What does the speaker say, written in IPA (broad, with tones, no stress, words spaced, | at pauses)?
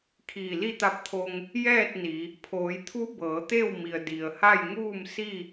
kʰiː˧˩li˥˨t̪a˧˥p̚t̪ʰo˧ŋ | jɛː˥˨t̚ ni˩˧ | pʰoː˩˧jt̪ʰu˧˥ bɤː˩˧t̪e˥˨w mi˩ə̯ di˩ə̯ha˥˨jŋuː˥˨m si˥˨